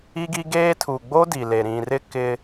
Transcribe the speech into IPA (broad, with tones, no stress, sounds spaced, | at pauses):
i˦ ɡ i˦ ɡ eː˦ tʰ u˨ ɡ͡b o˦ d i˨ l e˨ ɾ ĩ˨ r ɪ˦ k ɪ˦